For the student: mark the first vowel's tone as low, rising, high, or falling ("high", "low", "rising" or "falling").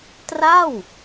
falling